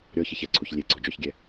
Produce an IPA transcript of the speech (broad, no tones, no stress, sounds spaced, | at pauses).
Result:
ɾʲ ɔ ç e ç ɛ ǀʰ u ç lʲ e ɡ͡ǀ ɔ d͡ʒ ɔ ç ɡʲ ɛ